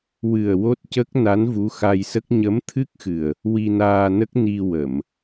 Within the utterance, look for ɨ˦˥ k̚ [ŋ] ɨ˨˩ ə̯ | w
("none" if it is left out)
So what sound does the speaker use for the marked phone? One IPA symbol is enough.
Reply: x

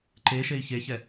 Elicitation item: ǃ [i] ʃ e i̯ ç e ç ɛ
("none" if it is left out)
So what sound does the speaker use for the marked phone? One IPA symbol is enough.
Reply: e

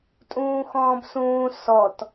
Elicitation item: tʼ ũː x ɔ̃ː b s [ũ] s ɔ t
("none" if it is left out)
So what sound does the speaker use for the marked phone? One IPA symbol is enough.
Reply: ũː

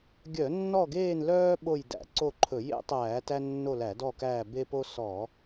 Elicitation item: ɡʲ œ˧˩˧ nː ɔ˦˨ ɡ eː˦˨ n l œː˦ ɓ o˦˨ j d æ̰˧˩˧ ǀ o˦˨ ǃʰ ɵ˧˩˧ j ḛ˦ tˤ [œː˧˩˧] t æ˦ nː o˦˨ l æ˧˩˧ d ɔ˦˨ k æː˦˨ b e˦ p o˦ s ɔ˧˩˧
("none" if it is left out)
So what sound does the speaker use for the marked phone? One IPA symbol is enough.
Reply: æː˧˩˧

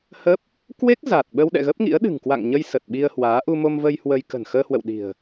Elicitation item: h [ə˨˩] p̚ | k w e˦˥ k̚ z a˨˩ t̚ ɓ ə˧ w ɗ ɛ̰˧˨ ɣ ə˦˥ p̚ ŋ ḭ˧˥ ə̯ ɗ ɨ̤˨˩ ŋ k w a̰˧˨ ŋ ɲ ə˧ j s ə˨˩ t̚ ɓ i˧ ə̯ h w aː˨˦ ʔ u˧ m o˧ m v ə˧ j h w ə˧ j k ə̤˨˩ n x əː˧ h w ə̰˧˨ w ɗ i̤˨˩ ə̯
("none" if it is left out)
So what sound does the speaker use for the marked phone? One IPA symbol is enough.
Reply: ə˦˥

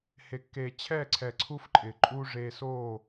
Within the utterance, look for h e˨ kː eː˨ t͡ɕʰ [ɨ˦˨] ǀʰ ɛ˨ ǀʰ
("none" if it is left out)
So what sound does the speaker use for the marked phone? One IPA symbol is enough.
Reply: ɛ˦˨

